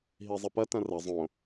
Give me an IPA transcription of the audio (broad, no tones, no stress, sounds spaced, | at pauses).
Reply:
ɦ i zˤ ɪ p ɐ t ɐ̃ r ɐ zˤ õ